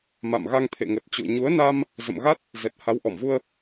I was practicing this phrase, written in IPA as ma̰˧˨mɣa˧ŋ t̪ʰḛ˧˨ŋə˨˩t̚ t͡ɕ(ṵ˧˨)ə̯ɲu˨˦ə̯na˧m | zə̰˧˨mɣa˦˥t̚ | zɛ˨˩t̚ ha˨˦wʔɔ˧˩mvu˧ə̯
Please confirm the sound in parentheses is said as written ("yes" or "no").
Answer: yes